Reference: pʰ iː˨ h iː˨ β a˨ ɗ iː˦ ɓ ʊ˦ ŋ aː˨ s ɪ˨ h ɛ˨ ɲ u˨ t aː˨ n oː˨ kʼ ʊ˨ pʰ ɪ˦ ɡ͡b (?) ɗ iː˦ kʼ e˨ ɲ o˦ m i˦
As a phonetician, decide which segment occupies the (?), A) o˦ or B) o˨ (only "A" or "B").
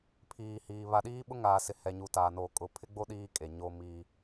A